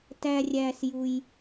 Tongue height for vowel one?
low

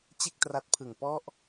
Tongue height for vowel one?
mid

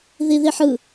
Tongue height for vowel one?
high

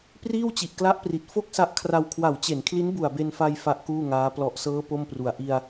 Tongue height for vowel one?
high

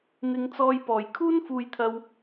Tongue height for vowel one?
high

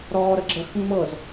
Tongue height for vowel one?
mid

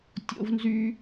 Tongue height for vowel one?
mid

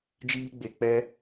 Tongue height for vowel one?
high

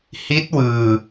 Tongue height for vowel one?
high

